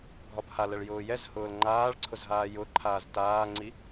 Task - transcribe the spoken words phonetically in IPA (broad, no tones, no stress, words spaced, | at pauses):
ɡʱɒbhalɛɭ jʊːjɛzhʊːl ŋ͡ǃaːɭǀʰʊz ɦaːjʊǃʰaːz taːŋ͡ǀi